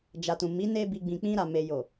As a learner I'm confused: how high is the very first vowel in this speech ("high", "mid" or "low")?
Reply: low